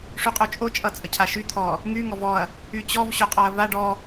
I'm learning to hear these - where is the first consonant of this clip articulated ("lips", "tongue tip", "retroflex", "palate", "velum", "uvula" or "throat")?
retroflex